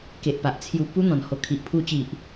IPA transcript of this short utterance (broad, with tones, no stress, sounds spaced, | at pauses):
k e˨ ʔ p a˨ ʔ t͡sʰ j u˧ p u˦ n̪ ɔ̃˨˩ n h o˧ kʰ i˨ ʔ pʰ u˧ t͡ɕ i˨ ʔ